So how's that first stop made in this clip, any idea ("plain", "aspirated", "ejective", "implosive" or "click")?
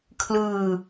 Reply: aspirated